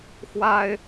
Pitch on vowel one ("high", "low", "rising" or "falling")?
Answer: high